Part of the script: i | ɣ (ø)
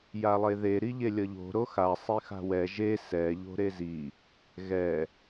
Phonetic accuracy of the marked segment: incorrect: ɛ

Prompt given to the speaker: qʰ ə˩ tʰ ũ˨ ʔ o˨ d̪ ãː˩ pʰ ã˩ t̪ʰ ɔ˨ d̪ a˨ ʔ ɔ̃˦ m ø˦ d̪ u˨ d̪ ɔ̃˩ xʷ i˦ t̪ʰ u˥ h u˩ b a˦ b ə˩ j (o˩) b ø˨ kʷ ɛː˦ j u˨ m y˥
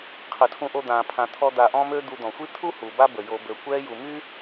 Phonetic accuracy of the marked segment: incorrect: o˨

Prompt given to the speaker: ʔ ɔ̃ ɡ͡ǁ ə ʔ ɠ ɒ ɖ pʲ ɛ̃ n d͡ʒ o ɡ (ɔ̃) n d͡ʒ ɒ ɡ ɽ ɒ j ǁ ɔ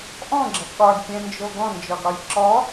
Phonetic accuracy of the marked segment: correct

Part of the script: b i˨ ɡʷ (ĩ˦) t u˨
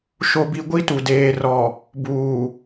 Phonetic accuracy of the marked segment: incorrect: i˦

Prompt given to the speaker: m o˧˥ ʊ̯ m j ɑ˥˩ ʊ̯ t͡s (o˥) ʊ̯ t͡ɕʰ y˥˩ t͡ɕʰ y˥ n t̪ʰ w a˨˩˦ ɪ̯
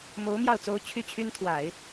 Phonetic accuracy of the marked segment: correct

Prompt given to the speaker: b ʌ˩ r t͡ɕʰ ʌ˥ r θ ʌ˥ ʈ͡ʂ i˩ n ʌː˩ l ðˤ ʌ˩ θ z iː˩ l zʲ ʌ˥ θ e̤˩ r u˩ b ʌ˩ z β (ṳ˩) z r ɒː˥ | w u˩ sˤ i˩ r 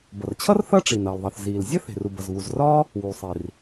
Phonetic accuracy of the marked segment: incorrect: u˩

